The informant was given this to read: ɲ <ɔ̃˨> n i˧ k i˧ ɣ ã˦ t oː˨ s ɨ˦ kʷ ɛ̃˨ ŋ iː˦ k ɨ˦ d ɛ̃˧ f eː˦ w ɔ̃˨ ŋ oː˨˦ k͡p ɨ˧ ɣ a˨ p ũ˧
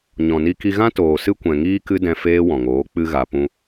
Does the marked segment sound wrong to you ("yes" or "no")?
no